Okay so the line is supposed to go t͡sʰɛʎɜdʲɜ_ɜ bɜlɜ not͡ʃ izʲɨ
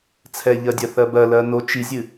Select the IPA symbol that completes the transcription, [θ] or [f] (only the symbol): θ